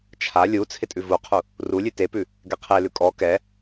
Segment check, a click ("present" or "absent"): absent